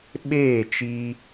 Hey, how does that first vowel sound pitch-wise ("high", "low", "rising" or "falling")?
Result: falling